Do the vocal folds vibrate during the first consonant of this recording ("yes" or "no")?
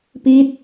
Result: no